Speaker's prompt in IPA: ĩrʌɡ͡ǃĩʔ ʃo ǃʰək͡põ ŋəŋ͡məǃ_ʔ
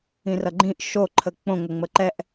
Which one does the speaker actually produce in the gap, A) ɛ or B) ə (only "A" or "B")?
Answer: A